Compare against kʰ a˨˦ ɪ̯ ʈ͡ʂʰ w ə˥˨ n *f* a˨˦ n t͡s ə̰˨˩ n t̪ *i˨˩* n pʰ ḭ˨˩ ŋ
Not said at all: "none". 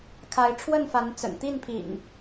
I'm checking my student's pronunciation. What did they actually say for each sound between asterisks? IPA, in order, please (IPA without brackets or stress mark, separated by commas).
f, i˥˨